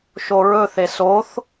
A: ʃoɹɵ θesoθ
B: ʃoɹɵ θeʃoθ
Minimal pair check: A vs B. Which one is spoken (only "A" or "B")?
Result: A